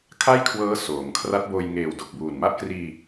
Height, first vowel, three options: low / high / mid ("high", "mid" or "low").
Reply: low